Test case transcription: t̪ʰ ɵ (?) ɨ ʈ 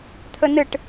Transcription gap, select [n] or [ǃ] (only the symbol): n